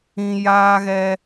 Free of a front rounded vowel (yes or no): yes